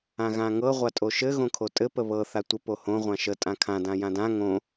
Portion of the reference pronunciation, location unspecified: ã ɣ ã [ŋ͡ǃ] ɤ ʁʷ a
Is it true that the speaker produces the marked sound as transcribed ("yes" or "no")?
no